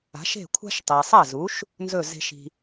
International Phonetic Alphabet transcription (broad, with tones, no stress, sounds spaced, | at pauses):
a̤˩˥ ʃ e̤˥˩ kʷʰ a̤˥ ʃ tˤ e˩ sˤ ɐ˥˩ z u˩˥ ʃ | n z ɵ˥˩ z e̤˥ ʃ i̤˧